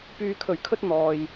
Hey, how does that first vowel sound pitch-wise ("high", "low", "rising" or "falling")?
low